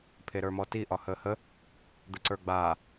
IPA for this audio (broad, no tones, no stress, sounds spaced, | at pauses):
pʰ e ɾ ə˞ m ɔ t i ʔ ɒ h əː h ə | d̪ ə ǀ ə˞ ɡ͡b aː